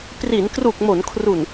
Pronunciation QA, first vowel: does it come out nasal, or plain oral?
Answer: oral